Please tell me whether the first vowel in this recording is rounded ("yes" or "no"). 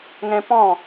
no